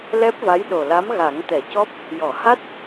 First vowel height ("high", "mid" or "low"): mid